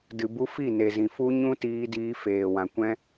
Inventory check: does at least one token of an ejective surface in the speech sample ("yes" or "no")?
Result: no